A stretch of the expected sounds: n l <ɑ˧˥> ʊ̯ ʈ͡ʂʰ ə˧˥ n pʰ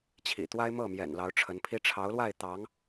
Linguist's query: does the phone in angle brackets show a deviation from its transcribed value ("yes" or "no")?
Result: no